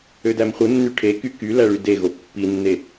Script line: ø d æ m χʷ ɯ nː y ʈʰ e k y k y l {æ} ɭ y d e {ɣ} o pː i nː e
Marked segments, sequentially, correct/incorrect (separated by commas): correct, correct